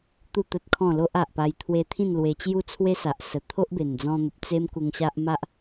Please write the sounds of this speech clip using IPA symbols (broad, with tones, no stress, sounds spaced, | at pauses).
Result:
t̪ u˥˧ t̪ ə˦ t̚ kʰ ɔ̃˥˧ l o˦ ʔ a˨ ʔ p a˧ j t̪ʰ w e˧ t̪ʰ ĩ˥˧ n l w e˧ t͡ɕ j u˥˧ t͡sʰ w e˦ s a˨ ʔ s ə˨˩ t̪ʰ o˦ ʔ b e˨˩ n d͡z ɔ̃˧ n̪ ə˨ p̚ t͡s e˦ m k u˧ ŋ ɕ a˦ ʔ m a˦ ʔ